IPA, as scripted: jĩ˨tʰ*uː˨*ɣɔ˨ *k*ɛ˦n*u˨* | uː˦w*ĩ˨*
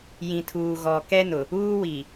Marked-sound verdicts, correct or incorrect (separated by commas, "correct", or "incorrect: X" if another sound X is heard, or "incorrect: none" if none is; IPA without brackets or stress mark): correct, correct, incorrect: ʊ˨, incorrect: i˨